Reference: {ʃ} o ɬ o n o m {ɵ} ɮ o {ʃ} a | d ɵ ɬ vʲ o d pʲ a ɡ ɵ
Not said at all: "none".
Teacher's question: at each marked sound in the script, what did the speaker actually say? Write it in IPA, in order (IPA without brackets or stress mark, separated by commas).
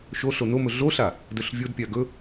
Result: ʃ, ɵ, ɬ